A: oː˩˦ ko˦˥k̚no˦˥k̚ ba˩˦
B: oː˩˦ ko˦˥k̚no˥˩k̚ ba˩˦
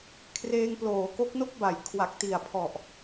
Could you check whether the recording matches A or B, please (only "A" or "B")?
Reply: B